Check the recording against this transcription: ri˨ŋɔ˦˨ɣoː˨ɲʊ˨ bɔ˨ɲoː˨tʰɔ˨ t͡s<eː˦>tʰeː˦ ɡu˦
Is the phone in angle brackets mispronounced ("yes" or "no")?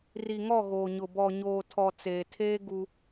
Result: yes